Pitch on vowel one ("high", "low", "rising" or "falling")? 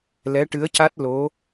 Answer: rising